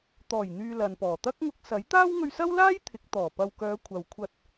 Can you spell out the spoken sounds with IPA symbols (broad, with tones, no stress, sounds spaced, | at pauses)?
t̪ ɔː˨˩ j n̪ yː˨ l ɐ˨ n p ɔː˨˩ t̪ ɐ˥ k̚ ŋ ʊ˧ k̚ s ɐ˨˥ j t̪ aː˥ w ŋ ɵ˧ ɥ s ɐ˥ w l aː˥ j t̪ʰ ɪ˨˥ k̚ t̪ ɔː˨˩ p ɐ˨ w k œː˨˧ kʷʰ ɐ˨ w kʷʰ ɐ˧ t̚